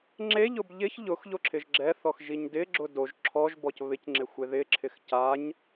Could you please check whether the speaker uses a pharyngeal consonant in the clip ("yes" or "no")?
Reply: no